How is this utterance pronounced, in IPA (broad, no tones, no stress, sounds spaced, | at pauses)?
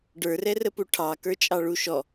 ɖ ə˞ r ɛ r ə p u ʈʰ ɑ k ə˞ t͡ʃʼ ɑ ɭ u ʃ ɔ